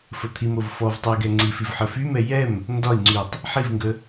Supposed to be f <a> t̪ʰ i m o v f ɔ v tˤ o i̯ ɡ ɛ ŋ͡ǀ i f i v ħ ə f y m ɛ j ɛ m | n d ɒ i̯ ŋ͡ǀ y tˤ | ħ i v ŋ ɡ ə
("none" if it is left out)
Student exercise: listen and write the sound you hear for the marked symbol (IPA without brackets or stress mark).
ə